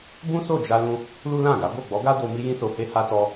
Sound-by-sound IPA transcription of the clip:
bũ˦so˦˨d͡ʒa˧lũ˧ | lu˦lã˦˨ɡa˨˦ bo˦˨ɡ͡bɔ˨˦ɡa˦ do˧ mi˦jĩ˦so˧he˦ ha˧tɔ˧

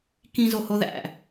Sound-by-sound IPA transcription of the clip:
kĩzo hoðæ̰

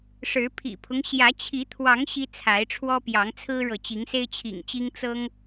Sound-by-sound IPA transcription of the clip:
ʂɻ̩˨˦pʰḭ˨˩pʰʊ˦ŋ ɕjä˨˦t͡ɕʰi˨˦t̪ʰwɑ˨˦ŋ ɕi˦t͡sʰa˨˦ɪ̯ʈ͡ʂʰwɔ˦ pjɑ˨˦ŋt͡sʰɹ̩˦ɻɤ˨ t͡ɕi˨˦ŋse˦ɪ̯t͡ɕʰḭ˨˩ŋt͡ɕi˦ŋ t͡sɤ˦ŋ

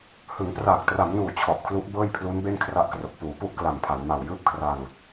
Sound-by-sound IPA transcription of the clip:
hɯ˩˦ŋpraː˨˩k̚tra˩˦mnuː˨˩ t͡ɕʰɔ˨˩ʔkʰlu˦˥ʔ bɤː˥˩jpʰlu˦˥n be˥˩nkʰra˦˥ʔkro˨˩k̚ puː˩˦pu˥˩ʔkla˨˩mpʰa˩˦n ma˨˩wjɯː˥˩p̚kʰra˧ŋ

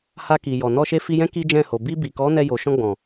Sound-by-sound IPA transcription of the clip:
ha˧ki˨jɔ˨ nɔ˧ʃe˧ fi˧jɛ̃˦ ki˦d͡ʒɛ̃˦˨ho˨ bi˧bi˨kɔ˨˦ nɛ˧ jo˨ʃɔ̃˧ ɡ͡bɔ̃˨

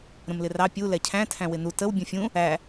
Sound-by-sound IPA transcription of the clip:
ɾə̃mlɪrɑ pʲu lɛcʰæ̃ tʰæ̃wɪnu təw bʲũfʲũ | æ

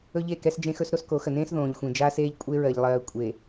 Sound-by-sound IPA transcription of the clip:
ɵ˦ʎe˦˨kɛ˦s d͡ʒẽ˦xɵ˦s ɾo˦sko˨˦xə˨nẽː˦s ðõː˨ʎxʷẽ˨d͡ʒaː˦seː˦ʎ kʷʼe˦ɹɜ˨ʎlˠɜː˨ kʷʼe˨

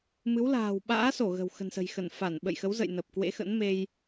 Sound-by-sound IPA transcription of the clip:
mɨ˨˦wla̤ː˨˩w ɓa̰ː˧˥so˧˩ ɣə̤˨˩w xə̤˨˩nsə̤˨˩jxə˧˩n fa˧˩nɓə̰˧˨jxə˨˦wzə̰˧˨j nə˨˩p̚kwḛ˧˥xə̰˧˥nme˧j

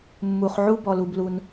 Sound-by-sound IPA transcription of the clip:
mːu˩χ ʕu˥bɔ˨lu˨blu˨n

